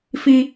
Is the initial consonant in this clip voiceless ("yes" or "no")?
yes